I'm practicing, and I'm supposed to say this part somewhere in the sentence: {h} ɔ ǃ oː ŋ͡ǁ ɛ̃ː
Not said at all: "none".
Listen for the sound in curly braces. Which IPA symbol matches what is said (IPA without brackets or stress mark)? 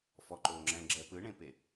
f